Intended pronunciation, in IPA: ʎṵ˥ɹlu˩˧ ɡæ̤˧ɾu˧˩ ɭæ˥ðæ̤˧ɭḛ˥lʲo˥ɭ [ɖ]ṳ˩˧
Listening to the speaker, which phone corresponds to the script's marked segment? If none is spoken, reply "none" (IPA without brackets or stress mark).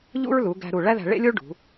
ɖ